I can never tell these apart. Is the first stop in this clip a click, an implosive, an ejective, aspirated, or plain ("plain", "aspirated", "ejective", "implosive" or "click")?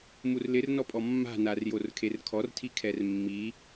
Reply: ejective